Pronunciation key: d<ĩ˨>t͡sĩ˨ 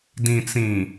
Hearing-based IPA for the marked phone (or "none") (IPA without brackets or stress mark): ĩ˨